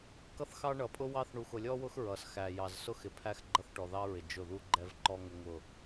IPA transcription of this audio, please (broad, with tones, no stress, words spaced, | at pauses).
kʌ˦θxɑ˦ɳʌ˨ pʼʊ˦wɑ˦θ ɳu˨xʊ˨lʲɔ˦wʊ˦x ɹʌ˨s xæ˨jɑ˨z sʊ˦˨x ɪ˨pʰæ˦x ɡ͡ǃʌ˦θʈɔ˨ðɑ˦ɹɪ˨ d͡ʒʊ˦˨ðu˦ɡ͡ǃɛ˦vǃɔ˦ ŋʊ˦ŋʊ˦˨